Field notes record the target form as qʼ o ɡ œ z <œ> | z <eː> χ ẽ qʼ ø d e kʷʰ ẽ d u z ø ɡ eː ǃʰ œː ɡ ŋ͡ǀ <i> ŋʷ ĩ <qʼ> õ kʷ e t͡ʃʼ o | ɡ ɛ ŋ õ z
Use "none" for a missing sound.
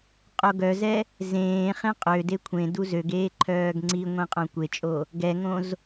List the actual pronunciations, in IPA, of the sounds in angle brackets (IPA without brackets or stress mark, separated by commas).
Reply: ɛ, ẽː, i, qʼ